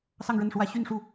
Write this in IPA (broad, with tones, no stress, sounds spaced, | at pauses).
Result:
s ɑ˥˧ ŋ ɻ ə˥˩ n ʂ w ä˥ ɕ y˥˧ n ʂ u˥˩